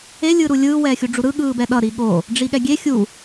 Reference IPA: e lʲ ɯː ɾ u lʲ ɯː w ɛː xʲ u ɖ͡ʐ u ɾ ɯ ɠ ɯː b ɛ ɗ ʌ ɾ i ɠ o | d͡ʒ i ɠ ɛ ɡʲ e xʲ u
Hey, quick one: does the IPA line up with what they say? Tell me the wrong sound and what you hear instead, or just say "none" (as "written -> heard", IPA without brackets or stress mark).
d͡ʒ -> ɖ͡ʐ